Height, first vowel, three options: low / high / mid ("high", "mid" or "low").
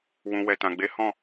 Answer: high